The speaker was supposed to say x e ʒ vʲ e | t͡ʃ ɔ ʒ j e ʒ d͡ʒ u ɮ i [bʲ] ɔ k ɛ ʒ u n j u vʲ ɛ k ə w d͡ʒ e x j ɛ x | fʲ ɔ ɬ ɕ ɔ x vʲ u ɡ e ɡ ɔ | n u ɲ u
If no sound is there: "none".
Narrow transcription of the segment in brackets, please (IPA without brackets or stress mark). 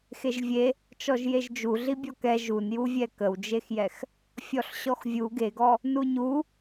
bʲ